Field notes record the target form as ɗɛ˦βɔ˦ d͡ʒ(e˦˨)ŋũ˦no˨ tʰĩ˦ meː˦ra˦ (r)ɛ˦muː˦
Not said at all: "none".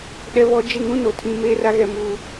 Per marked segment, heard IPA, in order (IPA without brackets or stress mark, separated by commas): e˦˨, ɣ